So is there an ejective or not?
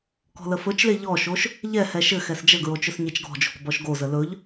no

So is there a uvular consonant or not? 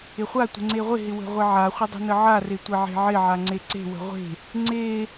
yes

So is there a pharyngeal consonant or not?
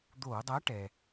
no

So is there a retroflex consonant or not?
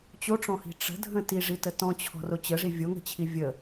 yes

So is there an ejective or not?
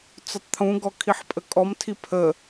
yes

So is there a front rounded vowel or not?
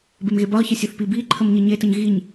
no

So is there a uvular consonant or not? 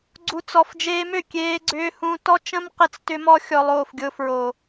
yes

